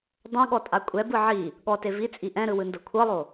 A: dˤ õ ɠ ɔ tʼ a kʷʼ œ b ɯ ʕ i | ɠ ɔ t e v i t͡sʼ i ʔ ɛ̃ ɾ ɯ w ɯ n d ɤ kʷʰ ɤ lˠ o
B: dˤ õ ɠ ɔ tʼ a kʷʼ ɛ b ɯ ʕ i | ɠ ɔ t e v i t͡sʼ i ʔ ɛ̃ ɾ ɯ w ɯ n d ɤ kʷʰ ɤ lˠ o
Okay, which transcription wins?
B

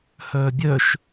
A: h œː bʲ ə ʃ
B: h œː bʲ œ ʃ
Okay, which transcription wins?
B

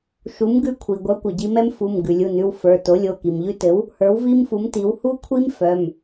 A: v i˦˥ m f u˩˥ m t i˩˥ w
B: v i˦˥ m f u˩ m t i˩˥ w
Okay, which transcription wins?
A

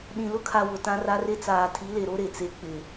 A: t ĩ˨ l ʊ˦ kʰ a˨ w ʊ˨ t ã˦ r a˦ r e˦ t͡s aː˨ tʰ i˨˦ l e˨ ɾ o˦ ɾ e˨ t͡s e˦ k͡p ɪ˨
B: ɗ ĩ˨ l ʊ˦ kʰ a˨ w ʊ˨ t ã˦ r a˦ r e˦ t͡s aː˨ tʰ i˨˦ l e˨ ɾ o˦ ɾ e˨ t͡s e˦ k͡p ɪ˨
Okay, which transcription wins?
B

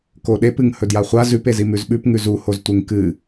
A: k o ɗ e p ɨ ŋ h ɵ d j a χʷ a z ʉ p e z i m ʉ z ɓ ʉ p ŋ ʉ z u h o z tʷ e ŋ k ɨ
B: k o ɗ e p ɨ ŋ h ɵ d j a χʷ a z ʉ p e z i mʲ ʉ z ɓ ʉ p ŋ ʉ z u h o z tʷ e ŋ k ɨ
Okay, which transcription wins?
A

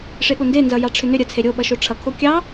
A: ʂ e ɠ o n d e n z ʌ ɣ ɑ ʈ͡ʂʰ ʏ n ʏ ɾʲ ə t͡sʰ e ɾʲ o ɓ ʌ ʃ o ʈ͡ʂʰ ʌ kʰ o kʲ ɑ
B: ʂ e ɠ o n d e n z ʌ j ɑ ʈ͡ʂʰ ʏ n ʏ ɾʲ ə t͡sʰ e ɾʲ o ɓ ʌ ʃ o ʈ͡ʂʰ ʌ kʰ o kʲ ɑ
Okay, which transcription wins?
B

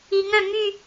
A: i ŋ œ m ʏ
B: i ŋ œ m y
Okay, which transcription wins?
B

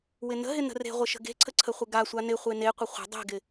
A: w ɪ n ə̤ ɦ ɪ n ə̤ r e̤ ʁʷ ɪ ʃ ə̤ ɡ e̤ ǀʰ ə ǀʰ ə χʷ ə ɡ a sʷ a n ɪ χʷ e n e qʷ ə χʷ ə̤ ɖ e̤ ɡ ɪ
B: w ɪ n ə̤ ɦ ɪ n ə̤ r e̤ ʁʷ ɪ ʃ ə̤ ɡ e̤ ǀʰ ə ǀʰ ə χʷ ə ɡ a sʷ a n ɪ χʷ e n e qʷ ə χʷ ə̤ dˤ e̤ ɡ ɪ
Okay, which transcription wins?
B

